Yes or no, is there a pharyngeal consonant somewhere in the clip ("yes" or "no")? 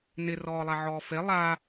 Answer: yes